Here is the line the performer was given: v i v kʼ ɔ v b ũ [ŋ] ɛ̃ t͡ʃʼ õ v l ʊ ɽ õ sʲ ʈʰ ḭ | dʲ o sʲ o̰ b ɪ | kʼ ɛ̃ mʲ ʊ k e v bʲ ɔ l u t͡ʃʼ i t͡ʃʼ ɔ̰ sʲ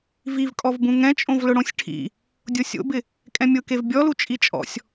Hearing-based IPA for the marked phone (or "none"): ŋ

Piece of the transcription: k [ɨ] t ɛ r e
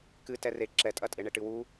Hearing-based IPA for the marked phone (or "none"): ɨ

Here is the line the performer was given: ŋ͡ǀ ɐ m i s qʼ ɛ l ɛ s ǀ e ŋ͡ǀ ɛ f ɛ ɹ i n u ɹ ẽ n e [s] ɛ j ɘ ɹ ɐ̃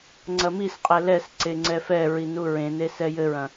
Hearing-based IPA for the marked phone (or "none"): s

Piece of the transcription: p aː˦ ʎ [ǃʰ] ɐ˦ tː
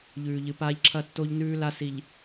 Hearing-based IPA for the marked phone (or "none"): ǁʰ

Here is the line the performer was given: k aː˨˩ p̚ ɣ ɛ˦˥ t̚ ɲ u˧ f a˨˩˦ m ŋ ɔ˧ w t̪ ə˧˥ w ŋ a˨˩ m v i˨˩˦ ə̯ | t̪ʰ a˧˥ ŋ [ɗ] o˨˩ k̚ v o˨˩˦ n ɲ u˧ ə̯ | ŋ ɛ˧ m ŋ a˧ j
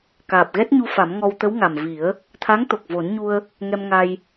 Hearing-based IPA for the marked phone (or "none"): t̪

